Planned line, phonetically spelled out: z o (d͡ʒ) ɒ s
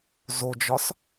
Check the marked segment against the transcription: correct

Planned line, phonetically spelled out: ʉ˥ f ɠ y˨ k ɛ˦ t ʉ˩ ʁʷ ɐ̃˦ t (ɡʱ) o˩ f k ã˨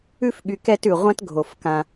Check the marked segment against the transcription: correct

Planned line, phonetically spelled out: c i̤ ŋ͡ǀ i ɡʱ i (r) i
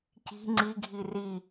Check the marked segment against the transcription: correct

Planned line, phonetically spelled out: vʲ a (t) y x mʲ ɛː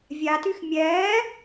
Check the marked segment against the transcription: correct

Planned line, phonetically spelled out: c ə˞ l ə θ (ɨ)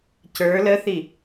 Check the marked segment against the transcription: incorrect: i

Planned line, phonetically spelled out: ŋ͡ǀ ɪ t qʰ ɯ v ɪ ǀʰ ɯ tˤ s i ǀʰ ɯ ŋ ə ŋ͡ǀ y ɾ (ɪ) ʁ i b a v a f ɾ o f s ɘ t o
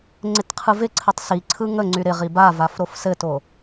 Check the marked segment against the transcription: correct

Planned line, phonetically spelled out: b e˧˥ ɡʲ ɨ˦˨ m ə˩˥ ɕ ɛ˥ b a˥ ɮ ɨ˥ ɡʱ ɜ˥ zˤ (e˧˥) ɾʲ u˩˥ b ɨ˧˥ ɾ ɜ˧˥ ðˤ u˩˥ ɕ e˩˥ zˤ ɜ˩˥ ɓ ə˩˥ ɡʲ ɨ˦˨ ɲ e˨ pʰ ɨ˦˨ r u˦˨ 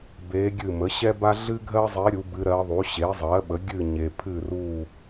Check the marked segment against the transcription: correct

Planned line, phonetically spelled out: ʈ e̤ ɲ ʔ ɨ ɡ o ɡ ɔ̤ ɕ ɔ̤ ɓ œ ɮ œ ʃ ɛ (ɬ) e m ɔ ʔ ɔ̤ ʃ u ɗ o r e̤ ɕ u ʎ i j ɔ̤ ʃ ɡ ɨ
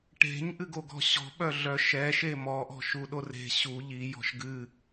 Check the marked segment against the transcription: incorrect: ʃ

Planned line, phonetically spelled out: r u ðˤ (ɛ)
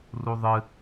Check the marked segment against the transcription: incorrect: ɨ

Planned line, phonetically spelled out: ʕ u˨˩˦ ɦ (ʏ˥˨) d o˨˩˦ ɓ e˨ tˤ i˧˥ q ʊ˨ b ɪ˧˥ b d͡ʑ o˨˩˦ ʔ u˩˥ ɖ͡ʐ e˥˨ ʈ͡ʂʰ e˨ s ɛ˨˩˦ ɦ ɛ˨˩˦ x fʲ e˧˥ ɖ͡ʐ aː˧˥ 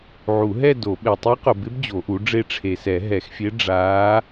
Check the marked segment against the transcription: incorrect: ɛ˥˨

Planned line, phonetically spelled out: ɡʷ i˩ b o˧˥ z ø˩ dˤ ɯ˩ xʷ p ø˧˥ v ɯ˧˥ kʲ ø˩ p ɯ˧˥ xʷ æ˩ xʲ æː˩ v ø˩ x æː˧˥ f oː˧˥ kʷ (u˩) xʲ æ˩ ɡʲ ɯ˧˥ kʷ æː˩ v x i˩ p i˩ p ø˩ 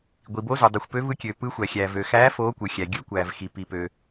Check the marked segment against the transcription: incorrect: ɯ˩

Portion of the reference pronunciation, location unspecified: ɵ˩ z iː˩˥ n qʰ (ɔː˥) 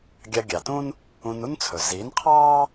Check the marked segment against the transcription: incorrect: ɑː˥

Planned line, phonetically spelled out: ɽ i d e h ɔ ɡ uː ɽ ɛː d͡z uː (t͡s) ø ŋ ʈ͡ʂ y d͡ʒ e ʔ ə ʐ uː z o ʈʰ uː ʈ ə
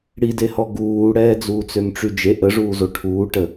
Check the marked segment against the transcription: correct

